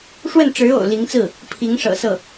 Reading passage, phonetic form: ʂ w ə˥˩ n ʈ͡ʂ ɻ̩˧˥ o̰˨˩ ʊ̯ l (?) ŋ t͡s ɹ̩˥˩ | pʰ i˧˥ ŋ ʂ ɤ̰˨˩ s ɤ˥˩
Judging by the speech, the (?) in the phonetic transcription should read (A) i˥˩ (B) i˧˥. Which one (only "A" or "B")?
B